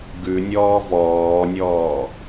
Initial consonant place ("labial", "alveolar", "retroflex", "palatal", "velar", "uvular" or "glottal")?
velar